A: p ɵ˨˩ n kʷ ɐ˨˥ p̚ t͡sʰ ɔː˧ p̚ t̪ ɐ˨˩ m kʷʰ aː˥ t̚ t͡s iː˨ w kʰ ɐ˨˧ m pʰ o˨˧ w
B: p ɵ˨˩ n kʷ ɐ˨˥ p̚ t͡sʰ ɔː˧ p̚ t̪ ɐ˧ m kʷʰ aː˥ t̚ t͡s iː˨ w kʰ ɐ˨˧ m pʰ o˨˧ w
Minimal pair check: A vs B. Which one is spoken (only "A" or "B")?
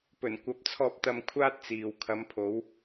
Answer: B